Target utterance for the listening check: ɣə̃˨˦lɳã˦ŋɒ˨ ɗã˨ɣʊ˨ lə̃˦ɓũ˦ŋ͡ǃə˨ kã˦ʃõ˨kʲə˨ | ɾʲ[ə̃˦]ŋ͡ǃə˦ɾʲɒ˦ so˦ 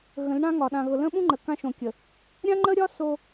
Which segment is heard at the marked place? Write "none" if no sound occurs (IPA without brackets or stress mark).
ã˦